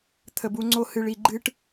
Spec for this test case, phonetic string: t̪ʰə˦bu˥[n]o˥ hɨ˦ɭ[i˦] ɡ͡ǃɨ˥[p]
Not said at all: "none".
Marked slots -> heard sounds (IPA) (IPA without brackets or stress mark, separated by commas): ŋ͡ǀ, i˦, ʈ